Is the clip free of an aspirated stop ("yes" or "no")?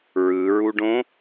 yes